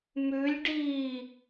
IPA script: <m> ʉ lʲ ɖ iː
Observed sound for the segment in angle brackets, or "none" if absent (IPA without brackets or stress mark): m